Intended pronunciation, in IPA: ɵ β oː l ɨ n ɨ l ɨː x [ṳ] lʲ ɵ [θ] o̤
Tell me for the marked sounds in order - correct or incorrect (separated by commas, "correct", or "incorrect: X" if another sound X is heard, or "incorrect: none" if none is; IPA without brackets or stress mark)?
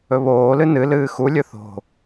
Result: incorrect: u, correct